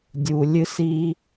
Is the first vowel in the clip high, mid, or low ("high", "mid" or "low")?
high